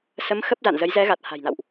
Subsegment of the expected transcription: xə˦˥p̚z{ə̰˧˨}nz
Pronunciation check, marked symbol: incorrect: a̰˧˨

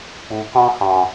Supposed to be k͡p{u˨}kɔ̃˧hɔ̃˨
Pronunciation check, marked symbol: correct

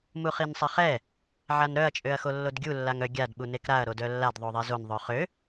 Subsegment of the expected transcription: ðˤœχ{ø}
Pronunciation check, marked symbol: correct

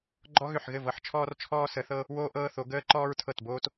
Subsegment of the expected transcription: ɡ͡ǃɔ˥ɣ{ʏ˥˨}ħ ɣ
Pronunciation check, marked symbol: correct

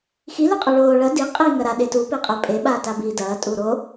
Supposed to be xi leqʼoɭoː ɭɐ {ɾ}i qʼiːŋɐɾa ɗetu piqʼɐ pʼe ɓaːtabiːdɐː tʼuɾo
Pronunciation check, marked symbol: incorrect: d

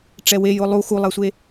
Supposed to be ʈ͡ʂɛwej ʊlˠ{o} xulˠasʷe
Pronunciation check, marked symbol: incorrect: u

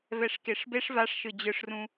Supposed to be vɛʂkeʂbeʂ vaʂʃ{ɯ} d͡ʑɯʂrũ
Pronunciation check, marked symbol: correct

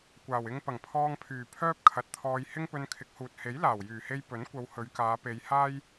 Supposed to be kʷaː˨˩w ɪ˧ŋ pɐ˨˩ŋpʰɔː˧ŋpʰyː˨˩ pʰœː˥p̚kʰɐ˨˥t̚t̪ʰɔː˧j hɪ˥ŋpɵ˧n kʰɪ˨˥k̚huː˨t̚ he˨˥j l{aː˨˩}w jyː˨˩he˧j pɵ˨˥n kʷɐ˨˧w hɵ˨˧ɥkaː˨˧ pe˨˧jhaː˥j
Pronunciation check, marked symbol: correct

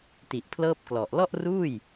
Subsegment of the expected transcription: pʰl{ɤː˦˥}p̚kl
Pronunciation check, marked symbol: correct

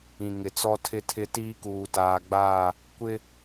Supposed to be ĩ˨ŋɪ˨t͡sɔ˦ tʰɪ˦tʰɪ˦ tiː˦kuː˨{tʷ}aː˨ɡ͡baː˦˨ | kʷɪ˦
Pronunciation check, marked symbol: incorrect: t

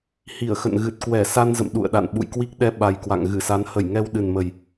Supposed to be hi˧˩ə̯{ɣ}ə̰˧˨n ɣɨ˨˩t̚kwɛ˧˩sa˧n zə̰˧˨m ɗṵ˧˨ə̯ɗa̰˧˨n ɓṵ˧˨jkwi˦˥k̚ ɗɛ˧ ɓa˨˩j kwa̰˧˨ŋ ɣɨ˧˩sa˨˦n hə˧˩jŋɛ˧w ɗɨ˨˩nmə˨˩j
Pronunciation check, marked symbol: incorrect: x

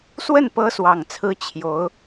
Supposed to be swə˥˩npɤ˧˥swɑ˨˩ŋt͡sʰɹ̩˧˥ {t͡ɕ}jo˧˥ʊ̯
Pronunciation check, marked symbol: incorrect: t͡ɕʰ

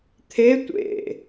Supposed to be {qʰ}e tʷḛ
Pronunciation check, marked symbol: incorrect: t̪ʰ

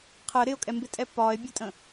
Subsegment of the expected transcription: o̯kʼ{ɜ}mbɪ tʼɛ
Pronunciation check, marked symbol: incorrect: ɛ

